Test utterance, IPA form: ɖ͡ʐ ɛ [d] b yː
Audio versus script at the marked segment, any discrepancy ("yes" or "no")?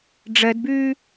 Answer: no